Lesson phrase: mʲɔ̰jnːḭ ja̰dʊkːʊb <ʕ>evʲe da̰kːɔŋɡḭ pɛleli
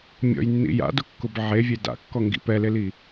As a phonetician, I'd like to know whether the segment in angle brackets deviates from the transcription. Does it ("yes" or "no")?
no